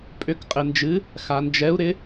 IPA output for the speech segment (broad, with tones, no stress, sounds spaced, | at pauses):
pʼ ʏ˨˥ k qʼ ɪ˨ n d͡ʒ ɨ˨˥ | x a˨ n d͡ʒ ɛ˨˥ u̯ ɾ ɪ˨˥